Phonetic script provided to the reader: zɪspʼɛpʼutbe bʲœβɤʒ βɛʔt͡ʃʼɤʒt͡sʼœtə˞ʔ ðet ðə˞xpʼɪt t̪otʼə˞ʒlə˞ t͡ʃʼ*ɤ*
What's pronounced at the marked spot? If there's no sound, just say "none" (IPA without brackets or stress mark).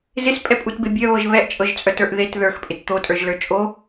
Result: o